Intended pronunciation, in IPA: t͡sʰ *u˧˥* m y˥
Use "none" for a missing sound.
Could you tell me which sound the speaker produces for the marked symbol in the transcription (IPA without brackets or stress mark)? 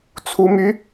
u˥